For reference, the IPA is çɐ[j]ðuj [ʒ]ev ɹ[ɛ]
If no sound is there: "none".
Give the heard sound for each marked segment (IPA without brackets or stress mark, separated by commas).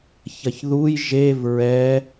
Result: ç, ʒ, ɛ